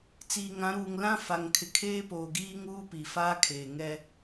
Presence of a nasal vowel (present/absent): present